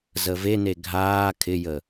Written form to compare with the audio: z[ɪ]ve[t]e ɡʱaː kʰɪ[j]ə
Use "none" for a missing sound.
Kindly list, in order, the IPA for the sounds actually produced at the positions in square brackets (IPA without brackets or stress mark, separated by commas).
ə, n, j